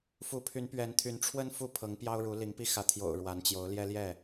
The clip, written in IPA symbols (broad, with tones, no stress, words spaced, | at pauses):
fu˨˦pʰy˨˦npɥɛ˨˦nt̪ʰy˨˦n ʈ͡ʂʰwə˦n fu˥˨pʰɤ˨˦ŋpjɑ˦ʊ̯ɻu˨˦ li˨˦ŋpi˦ xä˨˦t̪ʰjo̰˨˩ʊ̯ ɻwa˨˦nt͡ɕjo˨˦ʊ̯ ljɛ˦ljɛ˥˨